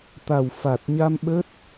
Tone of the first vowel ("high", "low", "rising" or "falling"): low